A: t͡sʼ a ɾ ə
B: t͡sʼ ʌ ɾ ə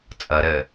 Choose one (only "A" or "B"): B